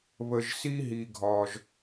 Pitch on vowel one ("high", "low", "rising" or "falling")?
low